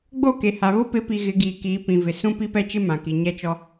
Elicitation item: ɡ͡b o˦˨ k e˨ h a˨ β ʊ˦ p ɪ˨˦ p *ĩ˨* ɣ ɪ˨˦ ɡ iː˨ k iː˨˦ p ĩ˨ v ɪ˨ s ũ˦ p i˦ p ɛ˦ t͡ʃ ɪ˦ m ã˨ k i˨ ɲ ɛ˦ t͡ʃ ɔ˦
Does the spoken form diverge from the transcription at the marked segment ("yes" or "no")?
yes